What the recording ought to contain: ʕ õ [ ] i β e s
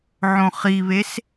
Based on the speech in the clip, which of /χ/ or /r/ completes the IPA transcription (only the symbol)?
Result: χ